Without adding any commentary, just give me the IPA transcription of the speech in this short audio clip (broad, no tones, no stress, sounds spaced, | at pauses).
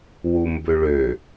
w u m b ø ɭ ø